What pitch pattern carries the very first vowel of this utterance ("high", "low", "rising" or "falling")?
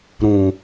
low